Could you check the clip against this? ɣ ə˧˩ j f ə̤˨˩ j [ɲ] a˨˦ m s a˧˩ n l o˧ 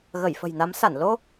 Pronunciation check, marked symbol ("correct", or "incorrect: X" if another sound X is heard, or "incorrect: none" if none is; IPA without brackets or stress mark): incorrect: n